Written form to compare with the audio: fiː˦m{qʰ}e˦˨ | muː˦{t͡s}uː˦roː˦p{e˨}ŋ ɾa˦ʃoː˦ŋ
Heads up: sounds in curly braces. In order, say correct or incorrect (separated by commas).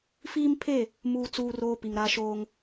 incorrect, correct, incorrect